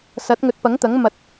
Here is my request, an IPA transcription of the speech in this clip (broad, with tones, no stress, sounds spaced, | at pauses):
s ɐ˨˥ t̚ ŋ ɵ˨˥ t̚ p ɐ˨˥ ŋ t̪ ɐ˨˥ ŋ m ɐ˧ t̚